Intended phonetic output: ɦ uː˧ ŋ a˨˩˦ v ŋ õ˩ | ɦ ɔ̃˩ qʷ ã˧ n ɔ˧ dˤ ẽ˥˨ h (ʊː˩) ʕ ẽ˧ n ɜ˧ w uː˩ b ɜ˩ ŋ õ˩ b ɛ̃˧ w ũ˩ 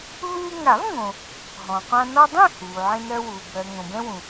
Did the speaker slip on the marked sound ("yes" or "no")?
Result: yes